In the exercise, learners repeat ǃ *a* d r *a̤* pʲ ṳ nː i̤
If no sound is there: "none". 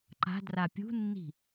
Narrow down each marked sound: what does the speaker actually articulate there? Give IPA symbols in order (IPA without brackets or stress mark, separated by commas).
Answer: a̤, a